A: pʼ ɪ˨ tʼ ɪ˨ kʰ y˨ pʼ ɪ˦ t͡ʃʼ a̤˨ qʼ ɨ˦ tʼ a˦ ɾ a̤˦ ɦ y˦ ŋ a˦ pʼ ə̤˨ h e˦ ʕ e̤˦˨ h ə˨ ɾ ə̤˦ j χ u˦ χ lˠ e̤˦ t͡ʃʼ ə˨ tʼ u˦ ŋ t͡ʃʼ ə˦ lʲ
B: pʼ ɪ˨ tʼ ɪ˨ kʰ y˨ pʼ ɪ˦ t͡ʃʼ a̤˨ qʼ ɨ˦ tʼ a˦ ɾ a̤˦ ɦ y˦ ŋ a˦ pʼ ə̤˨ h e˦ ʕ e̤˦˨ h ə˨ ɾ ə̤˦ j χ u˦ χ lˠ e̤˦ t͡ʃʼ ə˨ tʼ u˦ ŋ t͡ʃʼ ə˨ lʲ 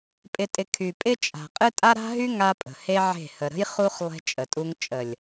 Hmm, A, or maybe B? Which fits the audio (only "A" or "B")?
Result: B